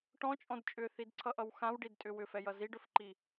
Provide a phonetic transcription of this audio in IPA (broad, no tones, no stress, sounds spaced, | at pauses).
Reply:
ʈ ɔ̃ t͡ʃʼ ɔ̃ d t͡ʃʼ ʏ θ i d ǀʰ ʌ ʔ ʌ w x ã w ɖ i d tʼ ʏ w ʏ f ɛ j ʌ z i ɖ ɵ f ǃ i